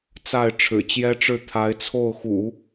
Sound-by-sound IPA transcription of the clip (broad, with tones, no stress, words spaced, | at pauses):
t͡sa˥˩ɪ̯ ʈ͡ʂʰɻ̩˨˩t͡ɕjɛ˥ʈ͡ʂɻ̩˥˩ t̪ʰa˧˥ɪ̯t͡sʰo˥˩ʊ̯xṵ˨˩˦